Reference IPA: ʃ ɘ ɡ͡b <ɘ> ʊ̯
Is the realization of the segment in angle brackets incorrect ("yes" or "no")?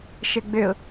yes